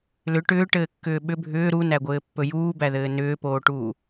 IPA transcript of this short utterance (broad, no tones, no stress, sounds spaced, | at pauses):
l ʏ ʈ ʏː ʈ ɘː kː ʏː ɓ ʏ bʱ ʏː ɾ u n æ ɡʷ ɘː pː ɵ j uː b æ ð ɘː n ʏː p oː ʈ uː